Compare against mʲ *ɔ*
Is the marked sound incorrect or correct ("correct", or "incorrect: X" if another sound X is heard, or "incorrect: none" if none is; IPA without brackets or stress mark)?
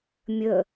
incorrect: ə